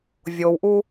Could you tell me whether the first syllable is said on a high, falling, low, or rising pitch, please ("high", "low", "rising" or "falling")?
low